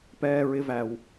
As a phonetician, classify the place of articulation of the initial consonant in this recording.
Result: labial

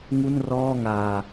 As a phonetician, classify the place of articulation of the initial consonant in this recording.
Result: velar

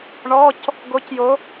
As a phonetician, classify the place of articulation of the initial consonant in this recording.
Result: retroflex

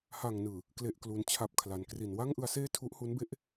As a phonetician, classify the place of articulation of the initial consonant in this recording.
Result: glottal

